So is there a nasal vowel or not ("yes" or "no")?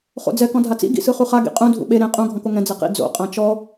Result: yes